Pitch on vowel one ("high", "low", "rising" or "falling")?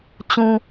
high